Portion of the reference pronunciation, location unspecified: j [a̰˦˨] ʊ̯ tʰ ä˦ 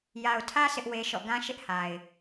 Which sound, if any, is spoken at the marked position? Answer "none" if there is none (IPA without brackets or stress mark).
a˨